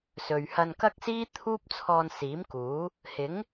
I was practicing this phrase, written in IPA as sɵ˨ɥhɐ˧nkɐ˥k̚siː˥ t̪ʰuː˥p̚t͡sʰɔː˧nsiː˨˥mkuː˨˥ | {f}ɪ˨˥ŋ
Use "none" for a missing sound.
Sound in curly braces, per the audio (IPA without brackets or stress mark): h